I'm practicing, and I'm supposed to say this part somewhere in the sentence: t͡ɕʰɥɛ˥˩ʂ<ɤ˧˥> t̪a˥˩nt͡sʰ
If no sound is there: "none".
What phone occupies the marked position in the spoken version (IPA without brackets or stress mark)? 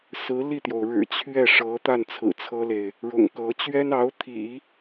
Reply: ɤ˧˥